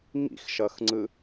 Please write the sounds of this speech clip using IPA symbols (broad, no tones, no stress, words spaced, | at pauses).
ŋḭxʃʌxŋ͡ǀɯ